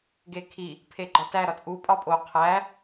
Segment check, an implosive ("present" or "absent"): absent